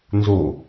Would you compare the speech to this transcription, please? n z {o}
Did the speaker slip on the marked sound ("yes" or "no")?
no